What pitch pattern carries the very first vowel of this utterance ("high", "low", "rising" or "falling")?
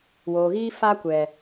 low